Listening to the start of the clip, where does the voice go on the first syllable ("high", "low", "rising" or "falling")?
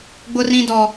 high